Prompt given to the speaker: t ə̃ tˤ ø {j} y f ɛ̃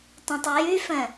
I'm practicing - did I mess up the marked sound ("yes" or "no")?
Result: no